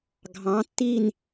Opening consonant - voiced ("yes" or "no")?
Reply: yes